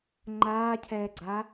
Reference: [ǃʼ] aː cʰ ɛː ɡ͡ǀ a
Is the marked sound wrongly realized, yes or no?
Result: yes